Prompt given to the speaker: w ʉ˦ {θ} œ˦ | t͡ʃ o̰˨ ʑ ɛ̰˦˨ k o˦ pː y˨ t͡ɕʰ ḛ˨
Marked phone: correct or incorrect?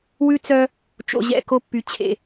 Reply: incorrect